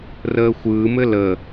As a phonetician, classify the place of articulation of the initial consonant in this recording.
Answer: alveolar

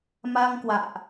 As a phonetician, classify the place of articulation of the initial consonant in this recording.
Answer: labial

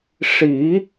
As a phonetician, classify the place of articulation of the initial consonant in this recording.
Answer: retroflex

